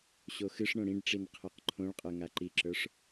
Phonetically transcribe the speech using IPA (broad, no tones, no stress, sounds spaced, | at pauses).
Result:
ɕ o x ɨ ʂ ɳ õ ɽ ĩ ɖ ʈ͡ʂ i n qʰ ə˞ q ǃʰ õ ɭ qʼ ə˞ ŋ a ǃ i ǁ ə˞ ʂ